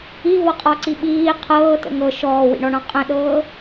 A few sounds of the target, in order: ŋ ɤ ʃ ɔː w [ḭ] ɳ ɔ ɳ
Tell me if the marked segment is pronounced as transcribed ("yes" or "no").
yes